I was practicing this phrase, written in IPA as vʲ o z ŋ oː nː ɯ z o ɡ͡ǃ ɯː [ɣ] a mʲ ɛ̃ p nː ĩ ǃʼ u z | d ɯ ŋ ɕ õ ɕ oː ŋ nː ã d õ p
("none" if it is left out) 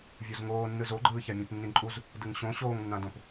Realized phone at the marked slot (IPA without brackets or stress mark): ç